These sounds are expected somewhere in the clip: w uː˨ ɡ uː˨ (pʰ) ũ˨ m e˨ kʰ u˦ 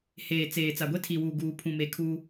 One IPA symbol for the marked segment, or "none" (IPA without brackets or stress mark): pʰ